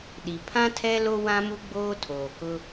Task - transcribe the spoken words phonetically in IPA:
ɗ i˨ pʰ ã˦ tʰ ɛ˦ l o˦ w ã˦ m u˦ ɡ͡b oː˦ tʰ oː˨ k ʊ˦

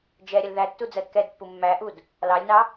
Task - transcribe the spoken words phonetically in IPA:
d͡ʒ ɛ ɾʲ ə l ð æ tː u d͡z ɜ d k ɛ d pː u mː æ ʔ u d | l ɑ lʲ n ɑ

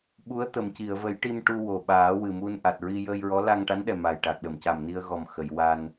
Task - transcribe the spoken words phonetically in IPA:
ɓ u˧˥ ə̯ t̪ ə˨˩˨ m c i˨˩˨ ə̯ v ə˨˩˦ j ʈ i˧ m ʈ u˧ w o˨˩ ɓ aː˨˩˦ w ɨ˨˩ m u˧ n ʔ a˨˩ t̚ ɹ i˧ j əː˧ j ɹ ɔ˧˥ l a˧ ŋ ʈ a˧˥ n ɗ ɛ˨˩ m a˨˩ j ʈ a˨˩ k̚ ɗ ə˨˩˨ m c a˨˩ m n i˧ ə̯ ɣ ɔ˨˩ m x ə˨˩˨ j w a˧ n

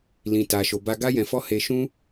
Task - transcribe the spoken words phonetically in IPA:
l ĩ˨ t a˨ ʃ o˨ b a˧ ɡ a˦ j ɛ̃˧ f ɔ˦ h e˧ ʃ ũ˦

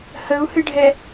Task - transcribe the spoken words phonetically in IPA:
h ə u̯ h ɨ ɖʱ ɛ

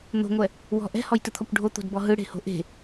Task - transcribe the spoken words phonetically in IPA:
n̪ o̤ ŋʷ ɛ | w ɔ̤ ʔ ɛ̤ h ɔ j t ɯ t̪ʰ ɔ kʷ ɖʱ o t̪ o̤ d b ɔ ɦ ɯ ɽ e̤ h o̤ ʔ e̤

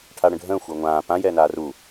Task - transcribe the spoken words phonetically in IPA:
ʈʰ a ɽ ə̃ ɖʱ ə̃ː xʷ əː ŋʷ ãː p ã j ɛː n aː r uː

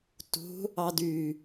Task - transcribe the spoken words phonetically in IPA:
t ṳ | ɑ d y

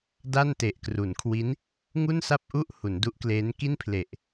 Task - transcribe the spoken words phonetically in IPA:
d a˥˩ n t e˨˩ ʔ k r u˩˦ n kʰ w i˦˥ n | ŋ u˥˩ n s a˥˩ p̚ ʔ u˥˩ ʔ h u˩˦ n d u˦˥ ʔ k l eː˦˥ n k i˥˩ n pʰ l e˨˩ ʔ

